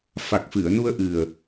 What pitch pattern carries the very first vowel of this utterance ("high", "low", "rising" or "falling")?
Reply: low